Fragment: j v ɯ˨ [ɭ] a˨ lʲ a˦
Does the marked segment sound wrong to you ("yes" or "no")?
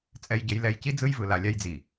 yes